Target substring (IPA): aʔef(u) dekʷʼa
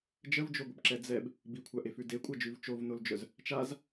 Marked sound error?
yes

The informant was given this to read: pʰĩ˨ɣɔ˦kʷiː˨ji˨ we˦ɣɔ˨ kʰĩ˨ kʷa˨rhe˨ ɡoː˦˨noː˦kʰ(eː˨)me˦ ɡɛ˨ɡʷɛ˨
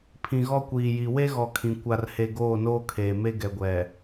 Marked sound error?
no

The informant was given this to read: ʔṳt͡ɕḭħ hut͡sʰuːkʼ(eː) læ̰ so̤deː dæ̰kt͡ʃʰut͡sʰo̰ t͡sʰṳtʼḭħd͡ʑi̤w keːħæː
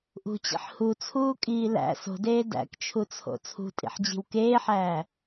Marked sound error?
yes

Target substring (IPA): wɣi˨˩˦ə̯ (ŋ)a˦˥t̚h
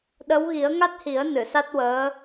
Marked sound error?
no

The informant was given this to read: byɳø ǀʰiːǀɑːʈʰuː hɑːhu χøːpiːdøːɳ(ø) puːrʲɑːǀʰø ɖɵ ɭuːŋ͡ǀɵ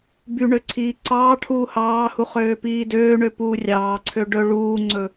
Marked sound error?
no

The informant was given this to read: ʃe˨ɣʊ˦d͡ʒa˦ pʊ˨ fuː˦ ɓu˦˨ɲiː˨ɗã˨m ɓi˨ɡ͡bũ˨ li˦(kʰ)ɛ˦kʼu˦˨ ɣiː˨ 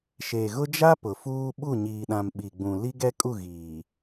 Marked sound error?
yes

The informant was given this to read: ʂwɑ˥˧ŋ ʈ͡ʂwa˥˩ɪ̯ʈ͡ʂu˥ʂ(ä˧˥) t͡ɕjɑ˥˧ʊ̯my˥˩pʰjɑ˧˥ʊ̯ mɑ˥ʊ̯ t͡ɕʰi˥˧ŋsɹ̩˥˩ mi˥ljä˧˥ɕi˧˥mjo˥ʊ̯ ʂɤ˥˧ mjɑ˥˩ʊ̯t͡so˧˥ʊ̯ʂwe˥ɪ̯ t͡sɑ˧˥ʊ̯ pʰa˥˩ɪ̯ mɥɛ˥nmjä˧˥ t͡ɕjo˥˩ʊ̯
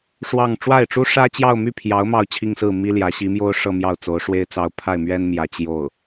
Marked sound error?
yes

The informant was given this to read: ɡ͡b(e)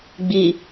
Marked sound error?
yes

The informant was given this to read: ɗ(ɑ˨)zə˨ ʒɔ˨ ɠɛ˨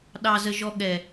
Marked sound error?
no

